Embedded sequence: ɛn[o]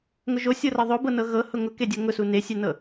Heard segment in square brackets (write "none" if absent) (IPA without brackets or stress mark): ɤ